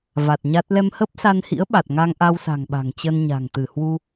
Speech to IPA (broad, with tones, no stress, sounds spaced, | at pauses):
v a˨˩ t̚ ɲ a˦˥ t̚ l ɛ˧ m h ə˦˥ p̚ s a˧ n h ḭ˧˥ ə̯ ɓ a˨˩ t̚ ŋ a˧ ŋ ʔ a˧ w s a̤˨˩ ŋ ɓ a̤˨˩ ŋ t͡ɕ ə˧ n ɲ a̤˨˩ ŋ t̪ ɨ˧˩ h w u˧